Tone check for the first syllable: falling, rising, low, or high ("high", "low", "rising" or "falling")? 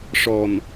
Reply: low